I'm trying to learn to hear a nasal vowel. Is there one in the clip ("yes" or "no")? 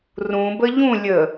yes